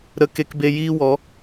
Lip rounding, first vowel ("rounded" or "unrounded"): unrounded